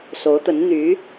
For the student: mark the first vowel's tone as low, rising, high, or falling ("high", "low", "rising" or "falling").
rising